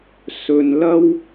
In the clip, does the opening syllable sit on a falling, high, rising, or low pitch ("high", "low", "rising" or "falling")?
low